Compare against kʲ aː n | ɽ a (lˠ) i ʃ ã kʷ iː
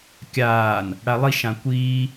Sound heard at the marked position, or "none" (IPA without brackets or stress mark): lˠ